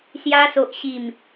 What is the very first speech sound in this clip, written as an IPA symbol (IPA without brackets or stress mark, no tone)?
s